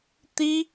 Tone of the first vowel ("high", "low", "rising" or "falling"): high